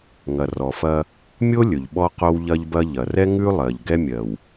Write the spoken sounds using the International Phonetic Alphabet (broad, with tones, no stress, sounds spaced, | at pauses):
ŋ ɐ˨ r ɔ˨ f ɐ˦ | mʲ o˦ lʲ ɵ˨ ʎ ɓ ɔ˦ q o˦ w ʎ ɐ˦ ʎ b ɐ˦ ʎ ɐ˨ r ɛ˦ ŋ ʉ˦ lˠ ɜ˨ ʎ ɡ ɛ˦ mʲ ɜ˨ w